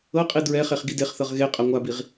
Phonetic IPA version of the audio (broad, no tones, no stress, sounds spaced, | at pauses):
ɤ qʼ i d ɹ ɛ χ e χ ɡ i d e χ θ ɤ ʁ ɣ e qʼ a ŋʷ a b i ʁ